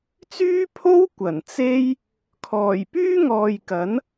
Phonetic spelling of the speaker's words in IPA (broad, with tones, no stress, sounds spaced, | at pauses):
t͡s yː˥ pʰ o˥ w kʷ ɐ˨˩ n t͡s e˥ j | kʰ ɔː˨˩ j p yː˥ ŋ ɔː˨ j k ɐ˨˥ n